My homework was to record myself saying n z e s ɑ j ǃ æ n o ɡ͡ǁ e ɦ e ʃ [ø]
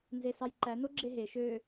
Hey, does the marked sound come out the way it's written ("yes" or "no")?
yes